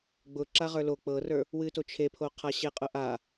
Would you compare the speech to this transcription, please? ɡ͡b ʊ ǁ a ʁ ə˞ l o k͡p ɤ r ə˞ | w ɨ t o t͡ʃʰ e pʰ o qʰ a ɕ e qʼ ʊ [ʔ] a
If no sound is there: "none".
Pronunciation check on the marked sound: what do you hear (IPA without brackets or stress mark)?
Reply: ʔ